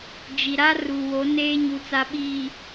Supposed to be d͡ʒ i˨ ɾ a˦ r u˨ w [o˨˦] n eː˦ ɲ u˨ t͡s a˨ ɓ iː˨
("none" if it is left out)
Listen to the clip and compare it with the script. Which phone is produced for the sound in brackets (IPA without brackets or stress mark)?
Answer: o˨˦